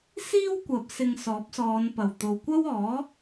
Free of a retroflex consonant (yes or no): yes